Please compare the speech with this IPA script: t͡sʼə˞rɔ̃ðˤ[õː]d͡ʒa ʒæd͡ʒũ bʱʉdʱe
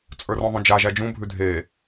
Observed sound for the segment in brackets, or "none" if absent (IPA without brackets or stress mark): õ